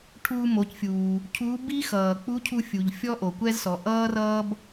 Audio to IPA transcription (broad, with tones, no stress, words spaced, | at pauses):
ʈʰuː˧mo˩˧cfʲuː˩ | cʰuː˧˥ bi˥xʌː˩ k͡pu˧˥cʰu˧fʲu˩ʎ fʲɔ˥ʔo˩kʷɛ˥zsɔ˩˧ ʔʌː˥rʌː˥b